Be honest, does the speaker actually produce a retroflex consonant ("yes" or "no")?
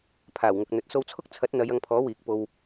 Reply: no